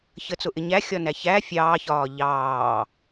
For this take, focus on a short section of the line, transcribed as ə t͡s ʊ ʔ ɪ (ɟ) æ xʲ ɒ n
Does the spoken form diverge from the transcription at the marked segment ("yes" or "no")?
yes